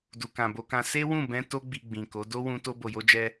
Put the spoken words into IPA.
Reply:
d u˨ k ã˨ b o˧ k ã˧ s e˦ w ũ˦˨ b ɛ̃˧ t o˧ ɡ͡b i˨ ɡ͡b ĩ˨ k o˨˦ d o˦ w ũ˧ t o˧ b o˨ j o˧ d͡ʒ ɛ˧

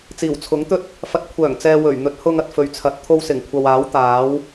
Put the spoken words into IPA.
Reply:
t͡s iː˨˩ w t͡sʰ ʊ˨˥ ŋ t̪ ɵ˥ t̚ | f ɐ˨ t̚ kʷʰ œː˨˩ ŋ t͡s ɛː˨ w ɵ˨˩ ɥ n̪ ɵ˨˥ t̚ h ʊ˧ ŋ ɐ˨ t̚ f ɵ˨ ɥ t͡sʰ ɐ˨˥ t̚ t̪ʰ o˧ w s ɪ˨˩ ŋ kʷʰ ɐ˨ w aː˨˥ w t̪ aː˨˥ w

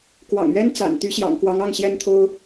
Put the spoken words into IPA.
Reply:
k w ɑ̰˨˩ ŋ ɥ ɛ˥ n t͡s a̰˨˩ n t̪ y˧˥ ɕ j ɑ̰˨˩ ŋ k w ɑ˧˥ ŋ ɑ˥˩ ŋ ɕ j ɛ˥ n t̪ʰ o˥ ʊ̯

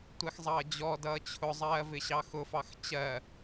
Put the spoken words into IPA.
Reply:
tʷ ɛ x zˤ ʌː d͡ʑ ɔ d ʌː t͡ɕʰ ʊ zˤ ɜː v ɪ ɕ ɑ x ʊ f ɑ x t͡ɕ ɜ

